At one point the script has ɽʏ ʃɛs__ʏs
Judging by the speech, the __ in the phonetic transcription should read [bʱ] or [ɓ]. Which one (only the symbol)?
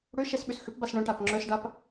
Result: ɓ